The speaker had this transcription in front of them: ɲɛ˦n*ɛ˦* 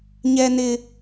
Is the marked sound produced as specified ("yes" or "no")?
no